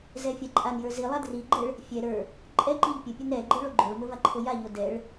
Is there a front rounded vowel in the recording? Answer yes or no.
no